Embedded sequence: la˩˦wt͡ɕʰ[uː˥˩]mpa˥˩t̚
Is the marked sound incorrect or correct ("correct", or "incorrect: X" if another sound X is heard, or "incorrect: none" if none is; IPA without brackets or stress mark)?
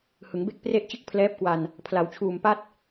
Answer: incorrect: uː˨˩